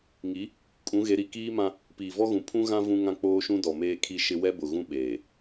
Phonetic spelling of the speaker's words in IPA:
ŋ i˨˦ | kʼ ũ˨˦ ɣ e˨˦ ɾ i˨ k iː˦ m ã˦ | p iː˨ v ɔ˦ ɣ ũ˨ pʰ ũ˦ ɣ ã˦ v ũ˦ ŋ ã˦ k͡p oː˦ ʃ ũ˦ d ɔ˨ m eː˦ kʰ i˦ ʃ ɪ˦ w ɛ˦ b ʊ˨ ɣ ũ˦ ɓ eː˨

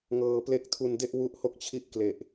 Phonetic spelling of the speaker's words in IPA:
ŋ ɤː˧ p l e˦˥ k̚ tʰ u˧ n d e˥˩ ʔ w u˦˥ ʔ h o˥˩ k̚ t͡ɕʰ i˥˩ ʔ k l e˨˩ ʔ

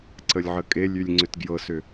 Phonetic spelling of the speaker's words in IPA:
ǀ ə lʲ ʕ ə kʼ e lʲ y lʲ ŋ͡ǀ ʏ t ɡ j ɤ s ʏ

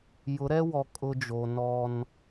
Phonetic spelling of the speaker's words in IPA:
j ʊ˨˦ ɾ ɛ˦ w ɔ˨ kʼ ʊ˦ d͡ʒ o˨ n ɔ˦ n

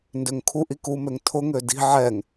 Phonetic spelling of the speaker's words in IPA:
n d ø ŋ kʰ u ʔ i k u m ø ŋ tʰ ʊ ŋ ø d i̤ ʕ ɛ ŋ

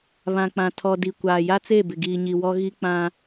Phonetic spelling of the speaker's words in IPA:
β ã˨ k͡p ã˨ tʰ ɔ˨ d i˨ kʷ aː˨ j a˦ t͡s e˦˨ b ɪ˨ ɡ iː˨ ɲ i˨ w ɔ˦ ɣ i˦ k͡p ã˦

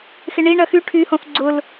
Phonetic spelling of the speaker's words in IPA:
x ɪ ɳ i ɳ ɐ x y ʈʰ y h õ θ ɡ͡ǀ ʊ l

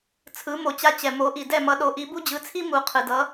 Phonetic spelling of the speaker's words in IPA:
t͡sʰ ɯ˩˥ m o˩ t͡ɕ a˧ t͡ɕ ɛ˩ m o˩˥ ʔ i˩ d ɛ˥˩ m ʌ˧ ɗ o˩˥ ʔ i˩˥ b u˥ d͡ʑ ɯ˩˥ t͡sʰ i˥ m u˩˥ qʰ ɯ˩ d ʌ˩˥

